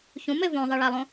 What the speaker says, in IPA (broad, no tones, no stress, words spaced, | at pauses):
çũme võðˤiɭælˠõ